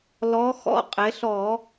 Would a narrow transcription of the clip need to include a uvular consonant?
yes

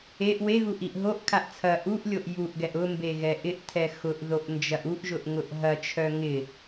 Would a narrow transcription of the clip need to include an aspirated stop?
yes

